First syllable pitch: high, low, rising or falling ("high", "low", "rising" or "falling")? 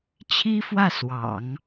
high